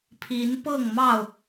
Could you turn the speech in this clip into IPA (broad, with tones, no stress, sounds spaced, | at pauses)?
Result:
pʰ i˨˦ n p ɤ˥˨ ŋ m ɑ˥˨ ʊ̯